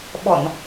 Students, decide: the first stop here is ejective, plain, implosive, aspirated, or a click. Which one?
implosive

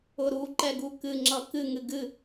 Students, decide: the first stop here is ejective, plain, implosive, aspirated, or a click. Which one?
click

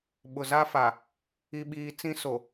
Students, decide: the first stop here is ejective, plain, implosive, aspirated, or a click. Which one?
implosive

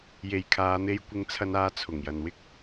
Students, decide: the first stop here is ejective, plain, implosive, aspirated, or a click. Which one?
aspirated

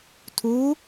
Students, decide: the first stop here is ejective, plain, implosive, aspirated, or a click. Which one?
aspirated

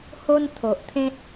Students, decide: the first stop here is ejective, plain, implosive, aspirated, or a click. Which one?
aspirated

